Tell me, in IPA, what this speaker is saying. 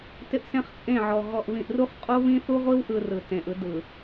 t ɪ˦ ʔ s ẽ˦ χ t͡sʼ ẽ˦˨ ʕ ɔ˨ ɣ ɔ˨ ʔ β ĩ˨ ʔ r u˦ χ qʼ o˦ β ĩ˦ θ u˦ ʁʷ i˦ w ʔ ɯ˨ r ɯ˨ t ẽ˨ ʔ ɯ˦ d ɯ˨

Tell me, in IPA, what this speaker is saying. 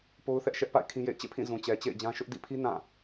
p o˦ ʊ̯ θ ɛ˦ ʔ ʃ ɛ˦ ʔ p a̰˦˨ ɪ̯ kʰ ĩ˦ j ḛ˦˨ ɪ̯ t͡ɕ ḛ˦˨ pʰ ĩ˦˨ z ũ˨ t͡ɕ ɛ˨ t͡ɕ ḛ˦˨ ɪ̯ d͡ʑ ã˦ ʃ ʊ˦ ʔ d ḭ˦˨ pʰ i˦ n ã˦˨

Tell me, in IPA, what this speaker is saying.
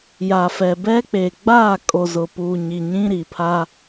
j a˨ f ɛ˨ b ɛ˦ k͡p e˨ ɡ͡b aː˦˨ kʼ o˨ z ʊ˨ p u˨ ɲ i˨ ɲ ĩ˦ ɾ i˨ pʰ a˦

